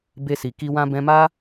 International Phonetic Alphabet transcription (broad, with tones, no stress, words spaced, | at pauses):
be˧si˨ki˧ wã˧bɛ̃˧ma˦